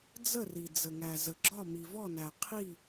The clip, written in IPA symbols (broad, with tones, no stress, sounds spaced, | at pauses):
d͡z ə˥˩ r i˩ d͡z ə˩ ŋ æ˩ z ə˩ ɡ͡ǁ ɒ˥˩ m i˩ v ɔ˥˩ n æ˩ qʰ i˥˩